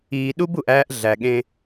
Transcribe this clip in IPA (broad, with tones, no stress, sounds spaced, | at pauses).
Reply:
iː˨ ɗ u˦ b u˨ ʔ æː˦ ʔ ɮ æ˨ ɠ ẽ˦